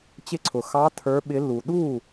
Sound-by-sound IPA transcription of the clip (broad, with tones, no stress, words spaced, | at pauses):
t͡ɕɪ˥˩ǀʰʊ˨ xɑ˧˥ tʰə˞˧˥ɓɪ˧˥lːu˨ ɗu˥˩